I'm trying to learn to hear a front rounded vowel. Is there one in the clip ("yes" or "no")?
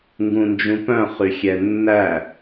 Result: yes